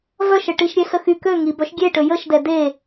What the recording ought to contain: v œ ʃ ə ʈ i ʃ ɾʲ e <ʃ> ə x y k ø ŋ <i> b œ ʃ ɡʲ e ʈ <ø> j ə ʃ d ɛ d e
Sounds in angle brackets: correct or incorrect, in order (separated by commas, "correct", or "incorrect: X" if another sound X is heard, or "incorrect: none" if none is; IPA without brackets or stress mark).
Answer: incorrect: s, correct, correct